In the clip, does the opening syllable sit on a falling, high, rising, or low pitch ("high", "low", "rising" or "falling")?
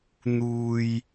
low